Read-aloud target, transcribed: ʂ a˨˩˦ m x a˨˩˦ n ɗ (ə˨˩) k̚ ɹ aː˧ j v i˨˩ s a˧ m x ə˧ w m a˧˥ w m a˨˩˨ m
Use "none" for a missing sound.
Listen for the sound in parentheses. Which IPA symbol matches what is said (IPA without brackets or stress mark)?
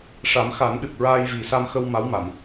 ɨ˨˩